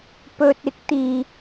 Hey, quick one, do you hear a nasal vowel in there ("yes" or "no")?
no